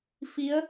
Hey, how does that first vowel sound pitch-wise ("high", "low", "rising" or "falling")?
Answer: rising